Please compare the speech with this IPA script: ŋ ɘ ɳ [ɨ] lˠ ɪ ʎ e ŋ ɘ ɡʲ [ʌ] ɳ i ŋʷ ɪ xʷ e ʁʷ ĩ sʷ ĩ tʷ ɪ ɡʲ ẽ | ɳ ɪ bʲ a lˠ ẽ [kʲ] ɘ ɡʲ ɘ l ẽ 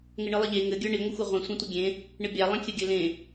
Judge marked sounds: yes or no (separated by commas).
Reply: yes, no, yes